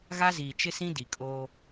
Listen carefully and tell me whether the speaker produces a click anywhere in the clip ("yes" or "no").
no